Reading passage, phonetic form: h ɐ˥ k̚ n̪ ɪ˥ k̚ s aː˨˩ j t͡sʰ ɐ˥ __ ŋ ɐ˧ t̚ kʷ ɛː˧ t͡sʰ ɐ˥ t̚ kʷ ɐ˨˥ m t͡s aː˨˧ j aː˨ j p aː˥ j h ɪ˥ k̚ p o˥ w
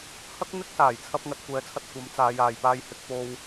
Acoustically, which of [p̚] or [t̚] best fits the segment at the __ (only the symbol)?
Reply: p̚